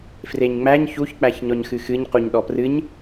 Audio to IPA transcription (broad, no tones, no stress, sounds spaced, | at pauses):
f r e ɲ ŋ͡m æ ɲ ç u ç k͡p æ ç ɲ ɔ ɲ x ɨ x ɨ ɲ q u ɲ ɗ ɔ p r ɨ ɲ